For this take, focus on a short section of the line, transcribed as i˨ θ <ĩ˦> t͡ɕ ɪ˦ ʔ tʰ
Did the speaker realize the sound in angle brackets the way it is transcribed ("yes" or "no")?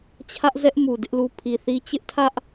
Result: no